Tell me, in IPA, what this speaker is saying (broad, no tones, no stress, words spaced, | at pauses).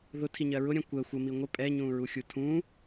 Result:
ðʊtʰiɲɜ ɹʊɾʲɛ̃ kʷɜ xʷəmi ŋʷə pʼɛɲũɹuxʲu tʰũ